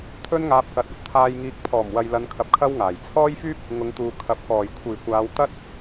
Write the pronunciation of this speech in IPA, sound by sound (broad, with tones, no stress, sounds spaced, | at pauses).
t̪ʰ ɵ˥ n ŋ aː˧ p̚ k ɐ˨˥ t̚ ɐ˨ p̚ t̪ʰ aː˧ j ŋ iː˧ k̚ pʰ ɔː˨˩ m w ɐ˨ j l ɐ˨˧ n kʰ ɐ˧ p̚ kʰ ɐ˥ w ŋ aː˨˩ j t͡sʰ ɔː˥ j f yː˥ p̚ | ŋ ʊ˨˧ ŋ t̪ uː˨ kʰ ɐ˨ p̚ k ɔː˨˩ j kʷʰ iː˨˩ kʷ aː˨˧ w t̪ ɐ˥ t̚